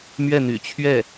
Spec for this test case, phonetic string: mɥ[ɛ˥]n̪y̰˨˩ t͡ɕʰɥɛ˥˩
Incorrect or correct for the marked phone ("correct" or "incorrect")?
incorrect